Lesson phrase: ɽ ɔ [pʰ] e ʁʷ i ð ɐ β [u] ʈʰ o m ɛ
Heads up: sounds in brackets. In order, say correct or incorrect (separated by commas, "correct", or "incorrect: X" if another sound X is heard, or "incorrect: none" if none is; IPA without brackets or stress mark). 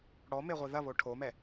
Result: incorrect: m, incorrect: o